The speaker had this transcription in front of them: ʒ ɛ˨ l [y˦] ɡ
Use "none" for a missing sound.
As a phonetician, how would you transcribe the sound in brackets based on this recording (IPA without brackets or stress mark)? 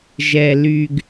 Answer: y˨